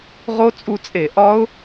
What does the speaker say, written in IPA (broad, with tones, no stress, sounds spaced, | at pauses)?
ʁ o˦˥ t͡sʼ u˧ t͡sʼ e˧˩˧ ʔ ɒ˦˥ ʊ̯